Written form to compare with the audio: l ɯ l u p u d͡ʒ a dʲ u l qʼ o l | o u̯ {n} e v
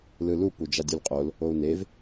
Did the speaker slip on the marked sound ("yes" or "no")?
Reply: no